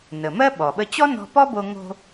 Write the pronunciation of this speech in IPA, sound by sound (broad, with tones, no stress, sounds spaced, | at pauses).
n ə˩ m ɜ˥ ɓ ɔ˩ ɓ ə˧ t͡ɕ ɔ˥ n ɔ̤˧ p ɔ˥ b o˧ ŋ o̤˧